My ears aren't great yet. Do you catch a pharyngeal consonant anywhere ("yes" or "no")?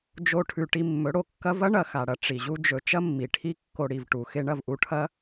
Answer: no